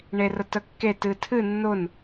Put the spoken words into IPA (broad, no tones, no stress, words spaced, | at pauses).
ɳerətəkːe tɨtʰɨ nːʊn